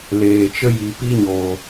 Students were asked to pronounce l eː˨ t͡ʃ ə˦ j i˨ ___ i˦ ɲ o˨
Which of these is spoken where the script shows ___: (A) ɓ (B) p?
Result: B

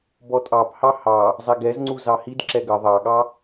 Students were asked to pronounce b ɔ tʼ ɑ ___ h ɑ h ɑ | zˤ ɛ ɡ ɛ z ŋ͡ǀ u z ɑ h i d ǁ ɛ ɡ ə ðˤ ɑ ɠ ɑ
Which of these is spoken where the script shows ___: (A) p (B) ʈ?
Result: A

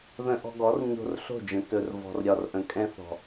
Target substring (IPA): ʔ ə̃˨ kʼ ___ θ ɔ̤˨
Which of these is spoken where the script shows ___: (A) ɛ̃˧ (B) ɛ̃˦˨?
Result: A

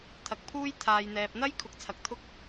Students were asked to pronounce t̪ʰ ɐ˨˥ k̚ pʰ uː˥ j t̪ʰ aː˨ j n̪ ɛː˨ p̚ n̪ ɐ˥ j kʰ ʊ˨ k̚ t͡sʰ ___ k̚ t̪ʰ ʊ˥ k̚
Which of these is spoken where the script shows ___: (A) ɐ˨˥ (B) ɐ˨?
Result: B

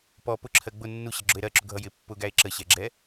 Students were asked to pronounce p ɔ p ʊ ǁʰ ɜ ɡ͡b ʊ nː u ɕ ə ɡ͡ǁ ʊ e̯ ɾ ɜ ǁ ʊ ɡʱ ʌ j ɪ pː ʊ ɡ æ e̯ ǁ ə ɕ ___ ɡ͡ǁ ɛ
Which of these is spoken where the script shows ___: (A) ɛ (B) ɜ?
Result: A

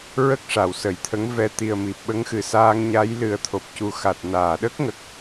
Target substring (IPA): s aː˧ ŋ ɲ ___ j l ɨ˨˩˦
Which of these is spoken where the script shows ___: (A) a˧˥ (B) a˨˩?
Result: A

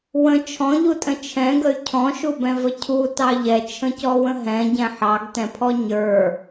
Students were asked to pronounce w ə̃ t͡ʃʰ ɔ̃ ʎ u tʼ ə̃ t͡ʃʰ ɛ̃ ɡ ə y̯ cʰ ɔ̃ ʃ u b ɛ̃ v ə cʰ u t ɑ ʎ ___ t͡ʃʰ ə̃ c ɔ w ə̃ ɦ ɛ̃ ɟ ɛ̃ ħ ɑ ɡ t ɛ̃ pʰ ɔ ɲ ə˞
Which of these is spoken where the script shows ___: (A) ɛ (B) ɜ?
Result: A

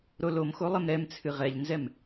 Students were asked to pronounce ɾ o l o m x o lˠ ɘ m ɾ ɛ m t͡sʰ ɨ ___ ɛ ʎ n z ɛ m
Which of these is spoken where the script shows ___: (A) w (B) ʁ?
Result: B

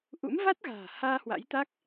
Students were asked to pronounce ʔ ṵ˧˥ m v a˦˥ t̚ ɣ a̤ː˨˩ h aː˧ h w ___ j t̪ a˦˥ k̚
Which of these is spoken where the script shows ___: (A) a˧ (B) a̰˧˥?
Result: B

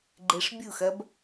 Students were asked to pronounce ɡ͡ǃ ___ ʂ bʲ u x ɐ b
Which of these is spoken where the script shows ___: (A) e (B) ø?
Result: A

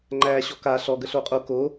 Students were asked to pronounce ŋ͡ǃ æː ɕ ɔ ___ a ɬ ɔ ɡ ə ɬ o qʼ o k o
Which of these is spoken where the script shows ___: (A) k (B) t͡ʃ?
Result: A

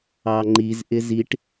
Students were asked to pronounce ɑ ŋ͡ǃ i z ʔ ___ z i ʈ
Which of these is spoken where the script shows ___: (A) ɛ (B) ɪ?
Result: B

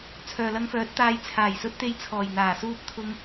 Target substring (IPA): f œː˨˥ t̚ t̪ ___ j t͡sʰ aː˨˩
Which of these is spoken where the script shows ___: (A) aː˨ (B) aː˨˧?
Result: B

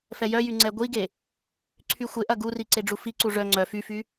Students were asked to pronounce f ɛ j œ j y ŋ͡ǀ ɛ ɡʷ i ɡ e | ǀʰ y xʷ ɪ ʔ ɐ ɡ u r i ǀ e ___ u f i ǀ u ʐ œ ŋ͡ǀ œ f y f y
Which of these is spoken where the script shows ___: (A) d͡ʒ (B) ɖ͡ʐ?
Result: B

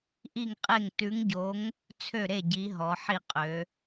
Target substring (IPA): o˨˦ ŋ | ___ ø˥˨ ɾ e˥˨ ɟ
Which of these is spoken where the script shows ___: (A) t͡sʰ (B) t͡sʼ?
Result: A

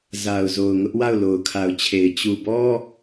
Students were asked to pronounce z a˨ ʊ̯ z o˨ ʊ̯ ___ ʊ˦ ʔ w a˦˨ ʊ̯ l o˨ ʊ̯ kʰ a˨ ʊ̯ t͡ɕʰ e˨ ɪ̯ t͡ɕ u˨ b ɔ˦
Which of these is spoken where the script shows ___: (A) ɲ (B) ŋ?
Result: B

